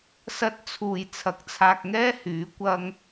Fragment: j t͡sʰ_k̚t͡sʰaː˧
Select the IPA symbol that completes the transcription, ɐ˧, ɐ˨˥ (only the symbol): ɐ˨˥